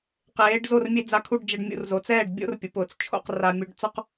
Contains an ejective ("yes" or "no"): no